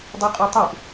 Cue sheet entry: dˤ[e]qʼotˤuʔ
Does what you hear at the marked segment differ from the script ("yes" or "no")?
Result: yes